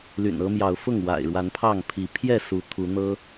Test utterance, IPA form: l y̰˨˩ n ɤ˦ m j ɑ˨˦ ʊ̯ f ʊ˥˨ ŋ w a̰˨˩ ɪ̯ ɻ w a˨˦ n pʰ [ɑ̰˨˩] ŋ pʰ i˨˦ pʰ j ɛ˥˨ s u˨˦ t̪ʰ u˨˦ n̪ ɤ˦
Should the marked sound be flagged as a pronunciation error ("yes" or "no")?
yes